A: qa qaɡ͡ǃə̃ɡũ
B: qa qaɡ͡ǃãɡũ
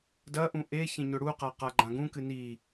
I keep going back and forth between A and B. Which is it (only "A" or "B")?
B